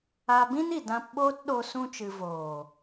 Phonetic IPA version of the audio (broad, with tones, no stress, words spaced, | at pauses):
a˧bĩ˦ni˨ dã˧pɓoː˦tɗo˧ sũ˦t͡ʃɨ˧ voː˨